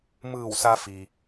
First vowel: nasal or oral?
oral